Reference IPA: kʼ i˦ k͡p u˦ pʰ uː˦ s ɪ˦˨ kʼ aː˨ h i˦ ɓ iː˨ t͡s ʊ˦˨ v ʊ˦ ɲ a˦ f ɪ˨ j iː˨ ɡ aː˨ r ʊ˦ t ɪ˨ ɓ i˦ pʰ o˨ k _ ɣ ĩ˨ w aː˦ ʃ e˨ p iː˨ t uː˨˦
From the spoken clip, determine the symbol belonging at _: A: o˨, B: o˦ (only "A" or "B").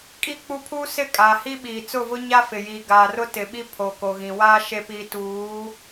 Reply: A